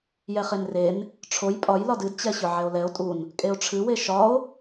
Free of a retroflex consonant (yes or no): no